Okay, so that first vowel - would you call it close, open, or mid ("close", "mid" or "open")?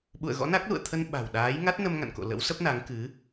close